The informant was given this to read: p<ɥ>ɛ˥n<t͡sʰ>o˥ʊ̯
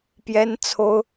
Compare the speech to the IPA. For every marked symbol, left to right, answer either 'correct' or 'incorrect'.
incorrect, correct

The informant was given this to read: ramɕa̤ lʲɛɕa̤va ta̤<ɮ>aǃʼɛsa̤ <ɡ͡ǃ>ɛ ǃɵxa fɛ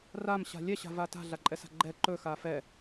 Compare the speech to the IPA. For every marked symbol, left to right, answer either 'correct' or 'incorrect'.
correct, correct

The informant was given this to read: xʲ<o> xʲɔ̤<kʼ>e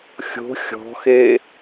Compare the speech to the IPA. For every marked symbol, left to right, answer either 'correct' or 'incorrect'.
incorrect, incorrect

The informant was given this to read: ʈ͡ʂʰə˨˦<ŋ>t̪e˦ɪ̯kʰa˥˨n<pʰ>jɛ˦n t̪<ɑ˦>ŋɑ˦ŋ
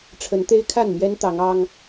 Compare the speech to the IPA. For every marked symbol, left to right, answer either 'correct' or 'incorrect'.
incorrect, incorrect, incorrect

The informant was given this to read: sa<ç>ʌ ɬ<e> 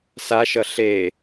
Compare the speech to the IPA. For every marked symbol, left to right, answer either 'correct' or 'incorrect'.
incorrect, correct

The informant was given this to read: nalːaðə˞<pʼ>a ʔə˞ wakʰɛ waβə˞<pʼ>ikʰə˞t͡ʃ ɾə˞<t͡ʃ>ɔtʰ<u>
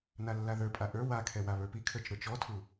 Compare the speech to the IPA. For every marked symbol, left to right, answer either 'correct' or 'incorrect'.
correct, incorrect, correct, correct

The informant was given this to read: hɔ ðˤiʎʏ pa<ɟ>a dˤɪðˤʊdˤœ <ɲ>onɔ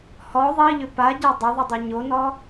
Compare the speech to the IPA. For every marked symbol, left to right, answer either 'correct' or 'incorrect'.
correct, correct

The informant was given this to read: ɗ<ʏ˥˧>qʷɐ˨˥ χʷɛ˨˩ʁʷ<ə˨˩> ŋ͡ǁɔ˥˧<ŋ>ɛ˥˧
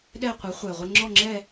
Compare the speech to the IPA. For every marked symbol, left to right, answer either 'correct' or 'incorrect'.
incorrect, incorrect, incorrect

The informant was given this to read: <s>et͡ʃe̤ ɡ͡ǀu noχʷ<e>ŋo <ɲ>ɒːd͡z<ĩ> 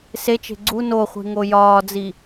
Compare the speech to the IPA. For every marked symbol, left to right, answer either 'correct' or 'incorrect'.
correct, incorrect, incorrect, incorrect

